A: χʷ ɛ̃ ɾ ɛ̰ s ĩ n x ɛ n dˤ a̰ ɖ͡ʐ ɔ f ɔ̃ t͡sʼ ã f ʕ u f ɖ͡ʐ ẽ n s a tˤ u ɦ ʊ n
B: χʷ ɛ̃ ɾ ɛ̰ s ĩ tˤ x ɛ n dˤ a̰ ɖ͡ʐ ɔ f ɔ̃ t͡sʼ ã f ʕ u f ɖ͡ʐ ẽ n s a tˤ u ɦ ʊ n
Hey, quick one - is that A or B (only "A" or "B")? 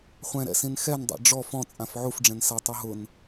A